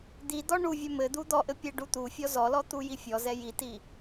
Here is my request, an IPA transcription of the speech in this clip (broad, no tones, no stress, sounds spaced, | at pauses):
d̪ i d̪ ɔ ɳ u vʲ ɛ m ɘ d̪ u d̪ ɔ ʔ ɘ pʲ ɛ ɖ u t̪ u fʲ ɔ z ɔ l ɔ t̪ u j i fʲ ɔ z ɛ j i t i